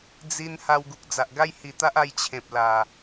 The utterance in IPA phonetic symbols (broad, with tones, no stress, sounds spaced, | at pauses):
d͡z i˧ n h a˧ w ɡ u˨ k̚ d͡z a˨ ʔ ɡ a˦ j h i˨˩ t̪ a˦ ʔ a˧ j t͡ɕʰ ẽ˨ p̚ l a˨˩